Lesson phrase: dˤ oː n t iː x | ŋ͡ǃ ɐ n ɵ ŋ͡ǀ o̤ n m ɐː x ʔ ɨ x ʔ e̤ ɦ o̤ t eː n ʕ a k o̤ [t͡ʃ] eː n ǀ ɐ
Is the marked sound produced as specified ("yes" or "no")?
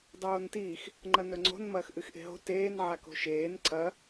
no